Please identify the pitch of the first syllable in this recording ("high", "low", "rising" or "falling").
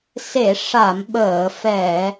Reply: low